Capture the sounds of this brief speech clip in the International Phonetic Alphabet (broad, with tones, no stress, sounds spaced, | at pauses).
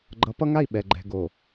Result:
ɡ͡ǃ ʌ˨˦ p ʌ˦ ŋ a˦˨ i̯ ɓ ɛ˨ ɡ͡ǃ ɛ̤˨ ɡ o˨